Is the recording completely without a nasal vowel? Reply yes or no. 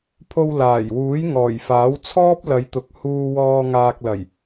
yes